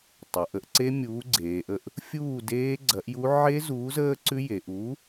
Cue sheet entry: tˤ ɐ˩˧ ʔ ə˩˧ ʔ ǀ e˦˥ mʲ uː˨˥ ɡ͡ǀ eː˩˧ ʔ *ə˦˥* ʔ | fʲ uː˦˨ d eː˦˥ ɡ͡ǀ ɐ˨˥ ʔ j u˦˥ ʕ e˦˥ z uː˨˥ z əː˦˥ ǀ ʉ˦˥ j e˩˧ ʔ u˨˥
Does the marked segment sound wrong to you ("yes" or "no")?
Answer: yes